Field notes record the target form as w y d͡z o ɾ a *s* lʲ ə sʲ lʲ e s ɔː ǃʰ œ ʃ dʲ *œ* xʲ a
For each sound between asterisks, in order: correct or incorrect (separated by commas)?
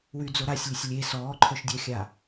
incorrect, correct